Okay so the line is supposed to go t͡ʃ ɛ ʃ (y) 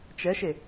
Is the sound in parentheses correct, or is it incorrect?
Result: incorrect